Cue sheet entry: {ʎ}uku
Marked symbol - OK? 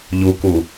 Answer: yes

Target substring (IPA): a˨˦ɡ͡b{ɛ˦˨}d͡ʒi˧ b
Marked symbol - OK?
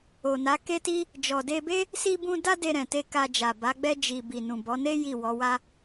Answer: no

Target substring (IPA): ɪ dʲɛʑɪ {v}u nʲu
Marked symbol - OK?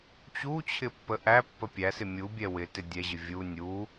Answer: no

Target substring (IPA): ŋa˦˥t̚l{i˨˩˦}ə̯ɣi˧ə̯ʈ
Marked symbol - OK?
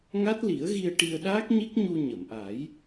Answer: yes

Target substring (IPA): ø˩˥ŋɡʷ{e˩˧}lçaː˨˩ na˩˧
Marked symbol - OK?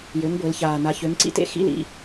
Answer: yes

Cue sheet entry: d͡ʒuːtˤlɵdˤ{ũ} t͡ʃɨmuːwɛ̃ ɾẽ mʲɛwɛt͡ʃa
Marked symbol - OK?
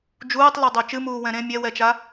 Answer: no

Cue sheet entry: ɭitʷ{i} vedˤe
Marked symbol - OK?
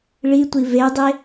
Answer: yes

